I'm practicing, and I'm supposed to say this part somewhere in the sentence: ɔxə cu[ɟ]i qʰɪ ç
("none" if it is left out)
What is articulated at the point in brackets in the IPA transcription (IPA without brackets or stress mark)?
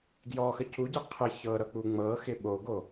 ɟ